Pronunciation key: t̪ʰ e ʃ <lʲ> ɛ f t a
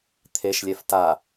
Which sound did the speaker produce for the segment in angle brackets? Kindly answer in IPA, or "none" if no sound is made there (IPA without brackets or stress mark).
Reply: lʲ